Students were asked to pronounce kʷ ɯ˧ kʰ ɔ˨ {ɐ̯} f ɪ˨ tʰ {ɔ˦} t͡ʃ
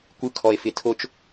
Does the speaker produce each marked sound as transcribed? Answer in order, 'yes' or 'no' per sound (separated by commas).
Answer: no, no